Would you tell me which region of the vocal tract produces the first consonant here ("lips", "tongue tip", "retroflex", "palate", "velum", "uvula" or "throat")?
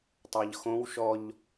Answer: tongue tip